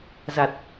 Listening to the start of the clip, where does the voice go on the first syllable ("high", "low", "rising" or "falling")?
low